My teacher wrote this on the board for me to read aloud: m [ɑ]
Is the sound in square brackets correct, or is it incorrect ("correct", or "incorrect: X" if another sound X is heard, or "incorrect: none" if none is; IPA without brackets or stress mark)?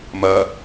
incorrect: ɐ